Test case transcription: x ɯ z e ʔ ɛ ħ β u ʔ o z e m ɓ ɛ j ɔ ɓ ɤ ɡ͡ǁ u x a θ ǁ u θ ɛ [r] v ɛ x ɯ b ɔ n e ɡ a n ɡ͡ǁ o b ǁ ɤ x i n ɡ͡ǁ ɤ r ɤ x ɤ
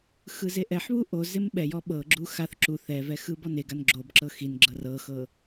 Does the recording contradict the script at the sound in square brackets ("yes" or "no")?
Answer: yes